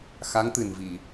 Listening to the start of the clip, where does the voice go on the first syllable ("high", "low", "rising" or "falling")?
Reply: rising